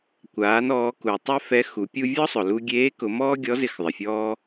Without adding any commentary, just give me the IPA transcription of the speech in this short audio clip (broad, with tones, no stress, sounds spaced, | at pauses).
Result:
kʷ aː˩˧ n ɔː˩˧ k u˩ tˤ ɛ˥ f ɛ˧˥ x u˩˧ pʲ u˧ vʲ ɔ˥ sˤ ʊ˩ l u˧ ɡʲ eː˧˥ k ʊ˩˧ m ɔː˥ ɡʲ ɔ˧˥ z ɪ˧ x ðˤ ɪ˩ fʲ ɔː˧